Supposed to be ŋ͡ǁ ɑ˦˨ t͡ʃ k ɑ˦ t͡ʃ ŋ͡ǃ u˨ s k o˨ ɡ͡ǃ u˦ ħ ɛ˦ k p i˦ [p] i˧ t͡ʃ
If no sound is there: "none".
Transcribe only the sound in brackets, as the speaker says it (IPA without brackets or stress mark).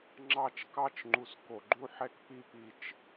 p